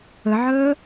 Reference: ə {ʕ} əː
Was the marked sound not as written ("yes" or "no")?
no